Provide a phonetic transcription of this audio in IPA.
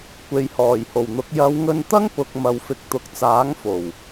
kʷ e˨ j h ɔː˨˩ j h o˨˩ w n̪ ʊ˨˥ k̚ j ɐ˨˧ w ŋ ɵ˧ n t̪ ɐ˥ ŋ p ʊ˨ k̚ m ɐ˨ w f ɪ˨ k̚ t̪ ʊ˨ k̚ t͡s aː˨˥ ŋ f o˨˩ w

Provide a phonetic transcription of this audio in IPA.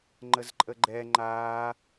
ŋ͡ǃ ə z ǃʼ ə ɡ͡ǃ ɛ ŋ͡ǃ aː

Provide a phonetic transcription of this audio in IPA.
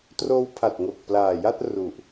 t r oː˦˥ w pʰ a˨˩ t̚ ŋ o˨˩ k̚ p l aː˨˩ j a˥˩ t̚ r u˨˩ ʔ

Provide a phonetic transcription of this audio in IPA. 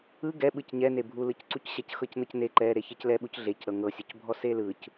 ɯ ɡ ɛ ɓ ɯ c ɲ ɛ n e bʱ u l ɯ c ǀ u c ɕ ɛ c x ɤ c n ɤ c n e ǃ ɛ ɾ e ç e c l ɛ ɓ u c ɮ e c ɾ ɤ ŋ ɤ sʲ o c bʱ ɔ s e l ɯ c

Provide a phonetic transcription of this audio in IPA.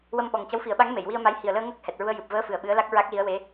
w ə˧ m ɓ ɔ˨˩ ŋ c ə˧˥ w f i˨˩˦ ə̯ ɓ a˧˥ ŋ m e˨˩˨ j w i˧ ə̯ m a˧˥ j h i˨˩ ə̯ l əː˧ ŋ əː˦˥ k̚ h ɛ˨˩ t̚ ɹ u˧ ə̯ j ɨ˨˩ p̚ v əː˧˥ f ɨ˨˩ ə̯ ɓ ɨ˧˥ ə̯ l a˦˥ k̚ ɹ a˦˥ k̚ l i˧˥ ə̯ w e˧˥

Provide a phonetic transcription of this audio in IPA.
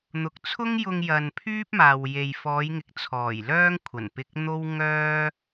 n̪ ʊ˨˥ k̚ t͡sʰ ʊ˥ ŋ j ʊ˧ ŋ j ɐ˨ n pʰ yː˥ p̚ m aː˨ w j e˨ j f ɔː˨˧ j ŋ ɪ˨˥ k̚ t͡sʰ ɔː˨˩ j l œː˥ ŋ kʷʰ ɐ˨˩ n p ɪ˧ k̚ n̪ o˥ w ŋ œː˥

